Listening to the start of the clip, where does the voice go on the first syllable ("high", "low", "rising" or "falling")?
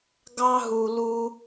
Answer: high